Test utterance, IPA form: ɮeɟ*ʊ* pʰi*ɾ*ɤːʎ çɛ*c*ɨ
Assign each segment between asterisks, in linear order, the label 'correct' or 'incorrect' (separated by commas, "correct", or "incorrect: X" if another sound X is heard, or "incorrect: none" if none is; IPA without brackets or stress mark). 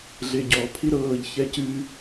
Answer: incorrect: ɔ, correct, correct